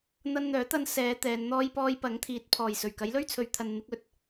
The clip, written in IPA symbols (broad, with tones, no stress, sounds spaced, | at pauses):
n̪ ɐ˧ n n̪ œː˨˥ t̪ ɐ˧ n s ɛː˨˧ t̪ ɛː˨˧ n n̪ ɔː˥ j p ɔː˥ j p ɐ˨˥ ŋ t̪ʰ iː˨˥ t̚ pʰ ɔː˨˩ j s ɵ˨˩ ɥ k ɐ˨˥ j l ɵ˥ ɥ t͡sʰ ɵ˨ ɥ t̪ʰ ɐ˨ n n̪ ɪ˧ k̚ ɵ˨˥ t̚